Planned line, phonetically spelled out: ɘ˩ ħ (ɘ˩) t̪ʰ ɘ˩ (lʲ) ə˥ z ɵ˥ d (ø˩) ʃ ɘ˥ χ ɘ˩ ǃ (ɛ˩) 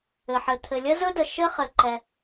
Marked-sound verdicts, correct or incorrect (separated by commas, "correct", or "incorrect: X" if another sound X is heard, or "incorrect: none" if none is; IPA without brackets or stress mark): correct, correct, incorrect: ə˩, correct